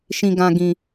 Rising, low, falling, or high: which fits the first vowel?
low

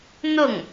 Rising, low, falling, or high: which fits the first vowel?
falling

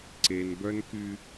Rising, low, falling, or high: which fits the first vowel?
low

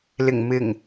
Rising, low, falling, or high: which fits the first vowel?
low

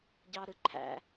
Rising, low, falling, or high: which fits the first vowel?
low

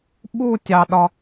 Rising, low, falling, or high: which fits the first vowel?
falling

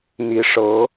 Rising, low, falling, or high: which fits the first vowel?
rising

